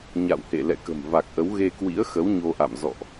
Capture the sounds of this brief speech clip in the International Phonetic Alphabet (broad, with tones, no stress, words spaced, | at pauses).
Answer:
ɲa̰˧˨whḛ˧˨ lɛ̰˧˨kə̤˨˩mva˨˩k̚ʔə˨˦w ɣe˧kwḭ˧˥ə̯xə˨˦w ɲo˧ʔa̰˧˨m zɔ̰˧˨ʔ